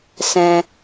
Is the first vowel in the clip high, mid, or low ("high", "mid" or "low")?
mid